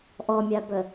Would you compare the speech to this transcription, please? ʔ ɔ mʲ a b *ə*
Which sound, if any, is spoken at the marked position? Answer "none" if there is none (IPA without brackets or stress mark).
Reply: ə